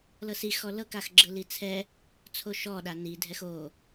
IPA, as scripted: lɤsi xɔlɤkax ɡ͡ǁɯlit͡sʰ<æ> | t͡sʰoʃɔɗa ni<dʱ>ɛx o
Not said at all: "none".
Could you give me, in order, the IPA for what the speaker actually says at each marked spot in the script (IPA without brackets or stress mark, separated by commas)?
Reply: ɛ, dʱ